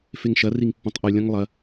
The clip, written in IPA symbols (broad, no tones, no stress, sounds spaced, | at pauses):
f e ŋ ʃ ɐ r i ŋ pː ũ tˤ ʔ ʉ lʲ ɐ̃ ŋ lˠ ɐ